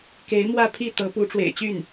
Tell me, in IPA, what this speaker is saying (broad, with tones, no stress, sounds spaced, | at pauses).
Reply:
k e˧˥ ɪ̯ m w ä˥˧ pʰ i˥˩ t̪ ɤ˧˥ p u˧˥ ʈ͡ʂ w ḛ˨˩ ɪ̯ t͡ɕ y˥˩ n